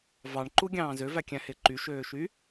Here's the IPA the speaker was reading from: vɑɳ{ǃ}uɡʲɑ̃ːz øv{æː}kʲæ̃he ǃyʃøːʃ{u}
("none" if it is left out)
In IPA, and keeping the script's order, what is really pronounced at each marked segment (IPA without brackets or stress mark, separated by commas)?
ǃ, æ, y